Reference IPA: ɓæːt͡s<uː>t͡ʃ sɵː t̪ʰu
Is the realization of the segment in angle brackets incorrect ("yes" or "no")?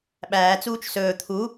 no